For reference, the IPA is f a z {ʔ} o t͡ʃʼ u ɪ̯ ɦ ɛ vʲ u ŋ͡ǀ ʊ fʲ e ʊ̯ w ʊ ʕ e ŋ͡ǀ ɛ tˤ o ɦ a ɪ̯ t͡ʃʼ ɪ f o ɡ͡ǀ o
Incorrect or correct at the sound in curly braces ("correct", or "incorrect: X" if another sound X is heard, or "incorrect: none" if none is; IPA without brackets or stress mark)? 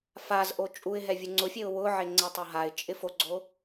correct